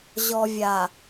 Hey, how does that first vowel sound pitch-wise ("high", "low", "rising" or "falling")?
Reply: low